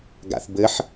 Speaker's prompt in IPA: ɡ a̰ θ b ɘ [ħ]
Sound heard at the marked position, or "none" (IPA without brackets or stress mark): ħ